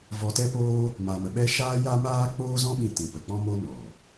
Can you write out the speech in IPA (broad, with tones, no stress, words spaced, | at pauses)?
vɔ˧tɛ˦poː˦ | ma˧mə˧ɓɛ˦ ʃaː˦ja˦maː˦ k͡poː˦zɔ̃˦ɓĩ˧ tĩ˨pə˨ k͡pɔ̃˦mo˦ nɔ˨